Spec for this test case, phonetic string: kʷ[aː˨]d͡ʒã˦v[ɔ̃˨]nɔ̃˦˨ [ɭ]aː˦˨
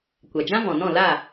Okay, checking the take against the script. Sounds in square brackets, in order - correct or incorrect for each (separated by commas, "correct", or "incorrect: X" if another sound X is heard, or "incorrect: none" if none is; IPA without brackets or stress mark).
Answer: incorrect: a˨, correct, incorrect: l